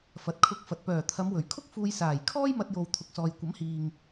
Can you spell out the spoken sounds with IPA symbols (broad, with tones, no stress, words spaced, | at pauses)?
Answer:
fɐ˨t̚kʰʊ˧k̚fɐ˨t̚ pœː˨˩ t̪ʰɐ˨˧mwɵ˨˩ɥkʰʊ˥k̚fuː˧j saː˨˩jkʰɔː˥j mɐ˧t̚jo˨w t̪ʰʊ˨k̚sɔː˨jkʷɐ˨˥mhiː˨ŋ